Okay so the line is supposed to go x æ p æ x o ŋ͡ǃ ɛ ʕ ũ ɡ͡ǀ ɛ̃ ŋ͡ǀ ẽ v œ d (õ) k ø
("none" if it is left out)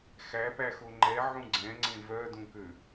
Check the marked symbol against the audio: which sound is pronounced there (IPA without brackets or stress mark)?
ũ